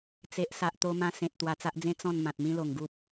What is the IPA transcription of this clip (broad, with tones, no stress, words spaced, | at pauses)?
t͡se˨ʔ sa˨ʔ t̪o˧mã˧ sẽ˨t̚ t̪wa˧t͡sa˦ʔd͡zẽ˦ t͡sɔ̃˥˧n mã˨t̚mĩ˦lo˨˩ŋɡu˦p̚